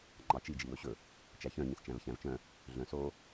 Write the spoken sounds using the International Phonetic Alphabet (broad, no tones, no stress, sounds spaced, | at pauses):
ŋ͡ǃ ɑ t͡ʃ i d͡ʒ i w ɵ ɕ ɵ | t͡ʃ æ ç œ̃ ɲ ĩ s t͡ʃ æ̃ v ç æ̃ v t͡ʃ œ̃ | ɮ œ̃ s o